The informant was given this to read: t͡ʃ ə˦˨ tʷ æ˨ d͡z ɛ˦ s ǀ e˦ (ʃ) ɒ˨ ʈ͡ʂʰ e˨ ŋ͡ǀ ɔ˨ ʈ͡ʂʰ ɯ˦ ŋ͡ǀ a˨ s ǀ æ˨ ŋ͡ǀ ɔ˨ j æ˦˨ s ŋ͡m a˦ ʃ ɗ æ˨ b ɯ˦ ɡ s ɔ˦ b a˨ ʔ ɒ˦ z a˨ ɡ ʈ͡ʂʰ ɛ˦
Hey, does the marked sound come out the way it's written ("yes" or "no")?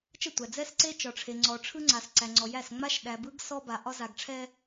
no